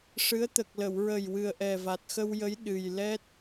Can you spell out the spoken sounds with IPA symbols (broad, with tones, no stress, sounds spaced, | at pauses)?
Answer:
ʂ ɨ˧˥ ə̯ t̪ ə˨˩ k̚ l ə˨˩˨ w ɹ ə˨˩ j w ɨ˨˩ ə̯ ʔ ɛ˨˩ v a˨˩ t̚ x ə˧ w j ə˧˥ j ɗ ɨ˨˩ j l ɛ˦˥ t̚